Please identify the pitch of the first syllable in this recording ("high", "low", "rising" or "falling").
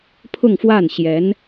falling